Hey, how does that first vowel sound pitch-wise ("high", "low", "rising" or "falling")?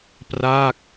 falling